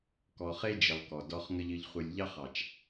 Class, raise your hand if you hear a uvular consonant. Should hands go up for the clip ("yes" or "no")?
yes